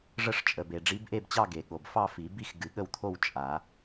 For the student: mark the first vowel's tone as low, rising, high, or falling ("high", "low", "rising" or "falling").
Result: falling